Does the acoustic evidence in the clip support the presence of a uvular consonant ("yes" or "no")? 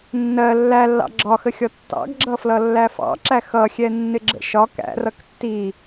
no